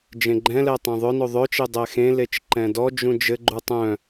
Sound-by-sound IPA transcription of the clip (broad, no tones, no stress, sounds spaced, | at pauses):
d͡ʒ ẽ ɡ͡ǃ ɛ̃ l ɛ tˤ ẽ ðˤ œ n o ðˤ œ t͡ʃ e dˤ ɛ x ẽ l e t͡ʃ ǃ ɛ̃ d ɔ d͡ʒ ũ d͡ʒ ɘ ɡ͡ǃ u tˤ œ̃